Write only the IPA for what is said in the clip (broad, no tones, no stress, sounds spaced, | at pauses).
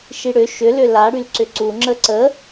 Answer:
ʃ i ɽ ʏ ʃ ʏ l ʏ l a ɽ y l ǀ ʏ ǀ u ŋ͡ǁ ə ǀ ə